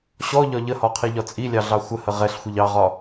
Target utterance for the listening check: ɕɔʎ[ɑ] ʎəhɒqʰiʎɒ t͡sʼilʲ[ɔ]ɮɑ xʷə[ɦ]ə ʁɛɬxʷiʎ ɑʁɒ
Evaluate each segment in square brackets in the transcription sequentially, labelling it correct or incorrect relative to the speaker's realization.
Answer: incorrect, incorrect, incorrect

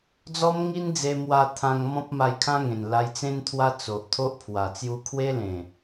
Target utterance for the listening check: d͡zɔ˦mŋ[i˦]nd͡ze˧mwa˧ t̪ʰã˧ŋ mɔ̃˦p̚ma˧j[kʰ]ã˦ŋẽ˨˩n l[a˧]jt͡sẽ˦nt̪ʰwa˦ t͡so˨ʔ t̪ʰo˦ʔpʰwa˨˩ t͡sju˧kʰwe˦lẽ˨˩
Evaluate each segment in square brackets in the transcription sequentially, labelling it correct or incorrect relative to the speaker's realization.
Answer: correct, correct, correct

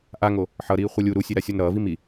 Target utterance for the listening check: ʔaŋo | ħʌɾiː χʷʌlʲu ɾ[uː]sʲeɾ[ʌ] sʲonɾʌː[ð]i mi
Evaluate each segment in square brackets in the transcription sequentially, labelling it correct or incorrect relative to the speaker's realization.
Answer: incorrect, incorrect, incorrect

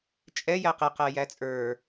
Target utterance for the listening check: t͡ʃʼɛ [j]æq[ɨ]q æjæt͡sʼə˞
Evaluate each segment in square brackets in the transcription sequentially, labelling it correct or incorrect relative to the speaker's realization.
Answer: correct, incorrect

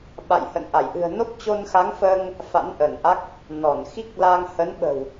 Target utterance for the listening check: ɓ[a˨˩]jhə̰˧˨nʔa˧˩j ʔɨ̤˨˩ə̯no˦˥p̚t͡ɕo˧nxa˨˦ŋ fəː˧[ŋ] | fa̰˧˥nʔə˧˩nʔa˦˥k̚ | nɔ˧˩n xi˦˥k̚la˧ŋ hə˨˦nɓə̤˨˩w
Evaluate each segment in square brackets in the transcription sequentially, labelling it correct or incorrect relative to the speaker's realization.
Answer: incorrect, correct

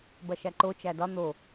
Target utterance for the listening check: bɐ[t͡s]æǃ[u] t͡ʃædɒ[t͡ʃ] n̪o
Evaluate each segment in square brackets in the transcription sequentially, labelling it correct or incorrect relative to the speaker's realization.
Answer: incorrect, incorrect, incorrect

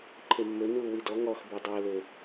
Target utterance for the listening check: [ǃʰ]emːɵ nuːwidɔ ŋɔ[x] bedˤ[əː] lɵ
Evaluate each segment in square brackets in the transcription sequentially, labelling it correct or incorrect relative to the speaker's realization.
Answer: correct, correct, correct

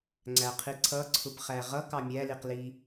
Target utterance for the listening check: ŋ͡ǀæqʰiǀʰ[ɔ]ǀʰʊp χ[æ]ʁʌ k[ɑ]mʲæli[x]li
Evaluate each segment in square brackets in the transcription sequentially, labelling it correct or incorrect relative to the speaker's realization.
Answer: incorrect, correct, correct, incorrect

